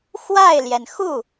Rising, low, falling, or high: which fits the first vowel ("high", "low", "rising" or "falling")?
falling